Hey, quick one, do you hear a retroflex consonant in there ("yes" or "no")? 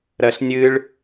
yes